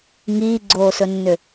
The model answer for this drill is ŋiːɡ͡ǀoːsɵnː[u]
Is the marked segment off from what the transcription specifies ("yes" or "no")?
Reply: yes